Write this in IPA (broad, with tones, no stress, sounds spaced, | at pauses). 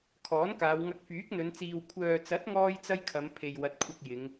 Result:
kʰ ɔː˨˥ n k aː˨˧ w ŋ ɐ˧ k̚ f yː˨˥ k̚ n̪ ɵ˨˧ n t͡s iː˨ w kʷʰ œː˨ t͡s ɐ˨˥ t̚ ŋ ɔː˥ j t͡s ɐ˥ j kʰ ɐ˨˧ m pʰ e˨ j w ɐ˨ t̚ kʷʰ ɐ˧ k̚ j ɪ˨˧ ŋ